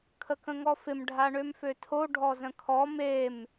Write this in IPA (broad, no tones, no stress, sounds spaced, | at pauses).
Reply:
kʰ ə k ə̃ ŋ ɔ f ɪ m ɖʱ a ɳ ø m f ø tʰ o ɖʱ ɔ z ə̃ kʰ ɔ m e m